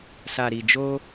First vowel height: low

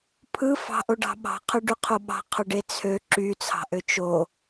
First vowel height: high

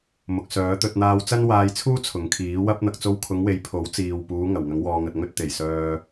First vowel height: high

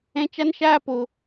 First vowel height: mid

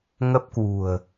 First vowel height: mid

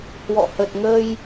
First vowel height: mid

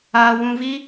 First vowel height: low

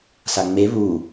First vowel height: low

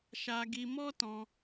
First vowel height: low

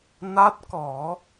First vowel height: low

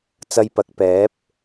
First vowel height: low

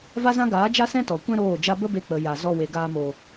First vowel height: low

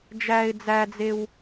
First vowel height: low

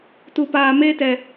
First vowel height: high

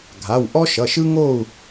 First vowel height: low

